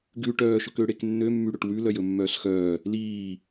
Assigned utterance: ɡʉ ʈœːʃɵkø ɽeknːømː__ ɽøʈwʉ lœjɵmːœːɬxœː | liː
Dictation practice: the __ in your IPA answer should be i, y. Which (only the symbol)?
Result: y